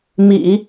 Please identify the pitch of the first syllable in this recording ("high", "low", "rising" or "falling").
low